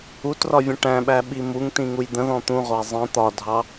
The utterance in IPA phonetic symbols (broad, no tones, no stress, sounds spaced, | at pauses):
u t r ɒ vʲ ə̃ ʈ æ̃ ɓ æ ɓ i m u ŋ t ĩ ŋ u j d̪ ə̃ ð ɔ̃ t̪ ũ ʁʷ æ zˤ ĩ t̪ ɒ dʱ ɑ